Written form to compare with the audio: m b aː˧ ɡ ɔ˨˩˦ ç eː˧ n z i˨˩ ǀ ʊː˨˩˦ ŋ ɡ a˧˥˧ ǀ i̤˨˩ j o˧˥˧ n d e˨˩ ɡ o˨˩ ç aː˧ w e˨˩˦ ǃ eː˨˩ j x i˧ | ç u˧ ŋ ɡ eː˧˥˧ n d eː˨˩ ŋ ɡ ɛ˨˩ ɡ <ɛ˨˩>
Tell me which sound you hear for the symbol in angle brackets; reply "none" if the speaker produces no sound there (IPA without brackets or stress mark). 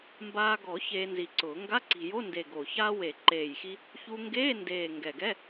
ɛ˧˥˧